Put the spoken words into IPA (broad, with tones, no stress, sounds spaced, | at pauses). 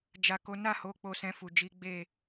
d͡ʒ a˨ k o˨˦ n a˦˨ h o˨˦ k͡p o˧ s ɛ̃˧ f u˨ d͡ʒ i˨˦ ɡ͡b e˦˨